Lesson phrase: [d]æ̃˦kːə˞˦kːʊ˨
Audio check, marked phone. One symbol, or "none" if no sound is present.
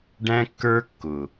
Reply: ɖ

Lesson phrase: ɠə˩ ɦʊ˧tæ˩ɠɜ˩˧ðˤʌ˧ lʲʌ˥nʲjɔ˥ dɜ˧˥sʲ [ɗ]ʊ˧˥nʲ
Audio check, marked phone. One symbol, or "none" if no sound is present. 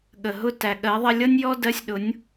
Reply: ɗ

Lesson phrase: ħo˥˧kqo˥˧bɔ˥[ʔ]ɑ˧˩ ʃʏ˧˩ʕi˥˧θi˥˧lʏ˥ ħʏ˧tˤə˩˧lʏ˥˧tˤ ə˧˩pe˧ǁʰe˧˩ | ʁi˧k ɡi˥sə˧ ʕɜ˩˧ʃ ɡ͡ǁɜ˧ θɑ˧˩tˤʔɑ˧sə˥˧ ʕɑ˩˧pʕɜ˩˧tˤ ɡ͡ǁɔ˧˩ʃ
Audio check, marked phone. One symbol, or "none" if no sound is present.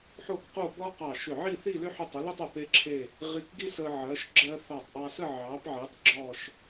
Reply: q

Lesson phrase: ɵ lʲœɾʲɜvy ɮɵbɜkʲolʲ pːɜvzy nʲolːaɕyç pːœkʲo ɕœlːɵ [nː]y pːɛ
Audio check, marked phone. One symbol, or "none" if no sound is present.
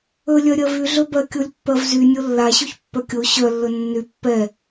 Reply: nː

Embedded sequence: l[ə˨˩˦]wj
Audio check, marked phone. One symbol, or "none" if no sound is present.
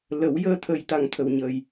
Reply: ə˨˩˦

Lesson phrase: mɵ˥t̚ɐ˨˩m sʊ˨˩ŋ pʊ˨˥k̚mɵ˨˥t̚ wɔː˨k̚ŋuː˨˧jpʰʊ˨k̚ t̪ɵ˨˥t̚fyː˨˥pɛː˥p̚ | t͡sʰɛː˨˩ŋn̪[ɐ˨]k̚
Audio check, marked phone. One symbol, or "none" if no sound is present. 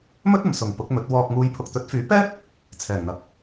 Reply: ɐ˨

